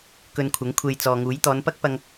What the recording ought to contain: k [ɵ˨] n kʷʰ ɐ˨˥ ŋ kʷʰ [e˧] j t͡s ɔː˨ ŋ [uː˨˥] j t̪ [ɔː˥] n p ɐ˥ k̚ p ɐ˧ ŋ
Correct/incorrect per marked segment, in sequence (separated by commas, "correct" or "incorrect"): incorrect, correct, correct, incorrect